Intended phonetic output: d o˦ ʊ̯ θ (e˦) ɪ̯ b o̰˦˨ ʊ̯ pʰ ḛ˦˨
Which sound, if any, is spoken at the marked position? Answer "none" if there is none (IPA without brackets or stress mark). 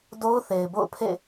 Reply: e˨